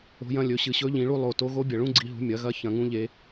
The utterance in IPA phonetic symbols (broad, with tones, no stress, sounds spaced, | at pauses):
o̤˨˦ j ɐ̃˨˦ lʲ ɵ˨˦ ɕ ɨ˧˩ ɕ ɵ˦˥ ʎ ĩ˨˦ ɭ u˦˥ lˠ o˧˩ t o˦˥ ɣ o˦˥ bʲ ɐ˧˩ ɭ ũ˦˥ ɡ͡ǀ i˨˦ ɦ ṳ˨˦ mʲ ɐ˨˦ ɣ ɐ˦˥ ç ɐ̃˧˩ ŋ ũ˦˥ ʎ e˨˦